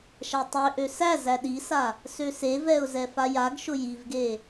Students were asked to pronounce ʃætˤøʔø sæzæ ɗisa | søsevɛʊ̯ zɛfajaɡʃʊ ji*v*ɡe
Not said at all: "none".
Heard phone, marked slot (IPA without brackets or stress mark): v